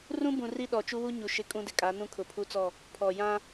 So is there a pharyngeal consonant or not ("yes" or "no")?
no